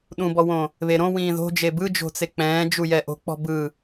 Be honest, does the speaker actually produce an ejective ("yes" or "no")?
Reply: no